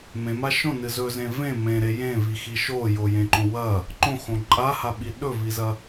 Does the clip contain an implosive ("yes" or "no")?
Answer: yes